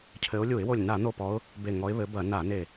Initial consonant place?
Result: palatal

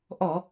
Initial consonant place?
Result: glottal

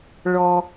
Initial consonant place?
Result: retroflex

